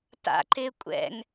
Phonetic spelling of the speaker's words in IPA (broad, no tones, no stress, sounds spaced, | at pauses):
t a̰ ǃ ɪː kʷʼ ɛ̰ ŋ